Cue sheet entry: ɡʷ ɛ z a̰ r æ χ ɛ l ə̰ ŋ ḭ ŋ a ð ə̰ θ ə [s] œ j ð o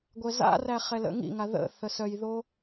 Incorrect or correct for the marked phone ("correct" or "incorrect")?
correct